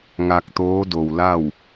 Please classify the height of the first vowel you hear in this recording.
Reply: low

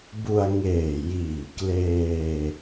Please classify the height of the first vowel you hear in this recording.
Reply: high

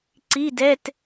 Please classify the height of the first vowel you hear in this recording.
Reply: high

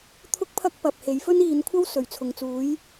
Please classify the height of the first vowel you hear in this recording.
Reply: high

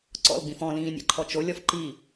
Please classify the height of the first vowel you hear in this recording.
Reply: mid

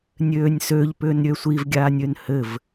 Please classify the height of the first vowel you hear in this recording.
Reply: mid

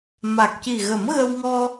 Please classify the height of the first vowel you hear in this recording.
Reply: low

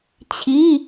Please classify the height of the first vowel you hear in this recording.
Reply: high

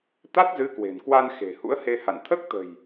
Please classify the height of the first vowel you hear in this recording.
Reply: low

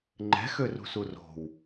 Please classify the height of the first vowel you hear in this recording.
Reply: mid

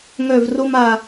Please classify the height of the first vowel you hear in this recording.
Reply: mid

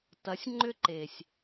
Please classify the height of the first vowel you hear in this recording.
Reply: low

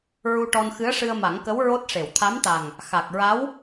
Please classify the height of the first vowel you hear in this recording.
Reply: high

